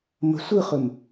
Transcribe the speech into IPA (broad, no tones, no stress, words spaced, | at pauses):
mə̤ sʷɯχɵm